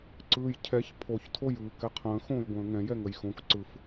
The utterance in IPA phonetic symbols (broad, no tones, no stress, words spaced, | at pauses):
ǀɯːjcʰɛç pʰoçtʰojɯːk ɛqʰə̃ːxõːj ɡʷə̃ːŋɛ̃ jɛŋəjxõk ǀɯf